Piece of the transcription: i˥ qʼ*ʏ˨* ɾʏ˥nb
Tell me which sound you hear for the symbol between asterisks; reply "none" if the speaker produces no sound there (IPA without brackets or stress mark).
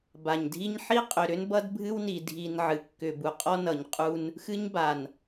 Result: ʏ˨